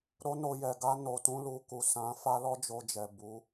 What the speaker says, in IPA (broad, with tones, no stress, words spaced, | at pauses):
ɾo˦no˧ jɛ˨ɡa˧ no˧tũ˦lu˧ ku˨sã˨˦ fa˦lɔ˦d͡ʒo˧d͡ʒɛ˨ bu˨˦